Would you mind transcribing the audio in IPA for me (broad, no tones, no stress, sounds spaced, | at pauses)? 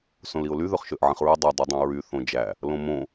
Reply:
s õ l i ʊ̯ l y ð ø χ ʃ ø ʔ ʕ ĩ χ ɹ y dˤ y dˤ i dˤ õ ɹ y θ õ d͡ʒ æ | l õ m õ